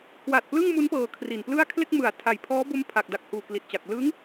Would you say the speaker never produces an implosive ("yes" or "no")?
yes